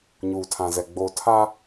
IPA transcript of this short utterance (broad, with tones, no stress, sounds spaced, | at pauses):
ɲ uː˨ tʰ ã˨ z ɛ˨ ɡ͡b oː˨ tʰ a˦